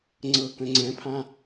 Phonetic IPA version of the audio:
ŋ͡ǀ ɤ k ə̃ ŋ͡ǀ ɛ̃ pʰ ã

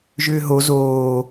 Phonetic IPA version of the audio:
ʒ ʏː ɦ o z oː

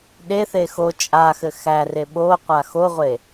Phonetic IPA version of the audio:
ɗ e θ e x o t͡ʃʼ a x ɘ x æ r e ɓ o qʷ a x o ʁʷ e

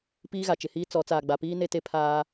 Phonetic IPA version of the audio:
p iː˦ ɣ a˨ t͡ʃ ɪ˨ h iː˦ t͡s ɔ˨˦ t͡s aː˨ ɡ͡b a˨ p iː˦ n e˦ t e˦ pʰ aː˦

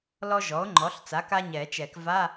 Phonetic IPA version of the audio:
l ɔ˥ ʒ ɔ˩˥ o̯ ŋ͡ǃ ɔ˩˥ ɬ t͡s a˩˥ k a˥ ɲ ɛ˨˩˦ t͡ʃ ɛ˨˩˦ k v a˧˥˧

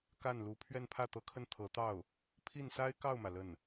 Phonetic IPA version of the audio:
k a˥˩ n l u˧˥ pʰ ɥ ɛ˥˧ n pʰ ä˥˩ t̪ ɤ˧˥ kʰ ə˥˩ n t̪ʰ ɤ˧˥ t̪ ɑ˥˩ ʊ̯ | pʰ i˥˩ n s a˥ ɪ̯ k ɑ˥˩ ʊ̯ m ä˩ l ə˥˩ n

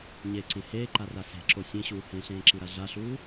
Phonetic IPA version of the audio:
ɲ e ǀ ẽ h eː ǃ a r a s e̤ ǁ o sʲ ẽ ɕ uː h ẽ ɬ ẽː ǁ i ɾ a ɮ a ɬ uː

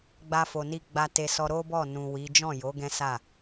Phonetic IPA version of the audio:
ɡ͡b a˧ f o˨ n i˧ ɡ͡b a˧ t e˧ s ɔ˧ ɾ o˦ b ɔ˦˨ n ũ˨ w i˨˦ d͡ʒ ɔ̃˦˨ j o˨˦ ɡ ɛ̃˦ s a˦˨

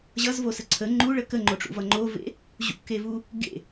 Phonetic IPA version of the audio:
ʑ ʌ z v o s ə ǀʰ ə ŋ͡ǃ u ɭ ə k ə ŋ͡ǃ o ʈ͡ʂ ṵ v ʌ ŋ͡ǃ o v ḛ | ʑ ṵ k e v u | ɡ ḛ

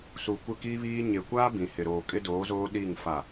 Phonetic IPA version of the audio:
s u˨ kʷ ɪ˦˨ k iː˦ β iː˦ ɲ e˨ kʷ aː˦ b ĩ˨ h ɪ˨ ɾ oː˨ kʼ ɪ˦ d oː˨˦ z oː˦ ɗ iː˦˨ ŋ f a˨

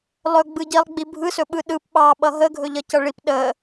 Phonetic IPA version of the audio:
lˠ ɵ ɡ͡b ɯ ɟ i lˠ ɡ͡b i bʱ ɯ s ɵ ɓ ɯ ɗ ɯ p ɓ ɑ ɓ ʌ ɦ ə ɡʱ ɵ ʎ ʌ c ʌ ɭ i p ɗ ə

